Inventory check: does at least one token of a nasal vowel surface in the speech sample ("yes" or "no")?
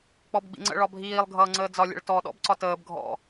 no